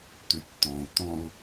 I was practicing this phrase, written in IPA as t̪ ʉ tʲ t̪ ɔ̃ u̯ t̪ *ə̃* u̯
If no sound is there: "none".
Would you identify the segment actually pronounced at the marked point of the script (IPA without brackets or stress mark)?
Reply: ɔ̃